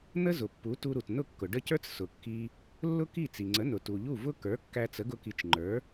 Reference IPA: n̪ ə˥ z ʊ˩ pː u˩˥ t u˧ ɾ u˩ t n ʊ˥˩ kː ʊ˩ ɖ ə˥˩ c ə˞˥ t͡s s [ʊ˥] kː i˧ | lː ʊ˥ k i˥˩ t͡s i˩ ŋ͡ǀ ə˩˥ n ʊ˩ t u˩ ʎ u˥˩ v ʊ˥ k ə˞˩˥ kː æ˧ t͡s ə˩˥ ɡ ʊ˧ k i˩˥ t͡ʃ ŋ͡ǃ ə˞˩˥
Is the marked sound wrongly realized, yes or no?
yes